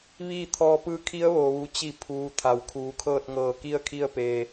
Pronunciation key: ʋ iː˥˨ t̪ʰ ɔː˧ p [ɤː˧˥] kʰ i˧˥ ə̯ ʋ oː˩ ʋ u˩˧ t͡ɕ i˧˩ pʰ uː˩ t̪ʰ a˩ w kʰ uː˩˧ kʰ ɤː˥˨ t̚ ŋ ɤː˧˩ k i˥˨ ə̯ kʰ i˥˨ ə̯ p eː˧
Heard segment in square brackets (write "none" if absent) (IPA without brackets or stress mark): ɯː˧˥